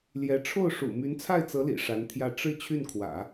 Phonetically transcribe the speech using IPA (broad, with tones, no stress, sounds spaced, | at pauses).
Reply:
l j ɛ˧˥ ʈ͡ʂʰ o˥˩ ʊ̯ ʂ ṵ˨˩ m y˧˥ n t͡sʰ a˥˩ ɪ̯ t͡s ɤ˧˥ l ḭ˨˩ ʂ a˧˥ n t̪ʰ j ä˥˧ ʈ͡ʂ ɻ̩˥˧ t͡ɕʰ y˥˩ n kʰ w ä̰˨˩˦